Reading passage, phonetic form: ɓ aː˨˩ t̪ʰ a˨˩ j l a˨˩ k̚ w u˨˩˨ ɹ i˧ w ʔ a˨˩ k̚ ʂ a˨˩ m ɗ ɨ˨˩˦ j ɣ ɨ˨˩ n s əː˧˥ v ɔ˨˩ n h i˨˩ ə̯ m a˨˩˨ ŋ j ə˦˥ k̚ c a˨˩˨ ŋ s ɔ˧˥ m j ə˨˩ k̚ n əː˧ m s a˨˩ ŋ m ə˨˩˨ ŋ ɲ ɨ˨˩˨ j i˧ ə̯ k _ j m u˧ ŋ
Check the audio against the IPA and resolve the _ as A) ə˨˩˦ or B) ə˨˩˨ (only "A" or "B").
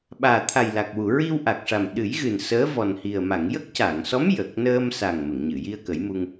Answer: A